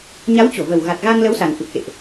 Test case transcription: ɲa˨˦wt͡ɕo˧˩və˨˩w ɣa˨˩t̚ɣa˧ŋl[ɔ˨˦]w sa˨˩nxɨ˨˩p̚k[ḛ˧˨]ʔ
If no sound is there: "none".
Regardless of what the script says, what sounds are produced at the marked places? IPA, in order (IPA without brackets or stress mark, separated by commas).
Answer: ə˨˦, ḛ˧˨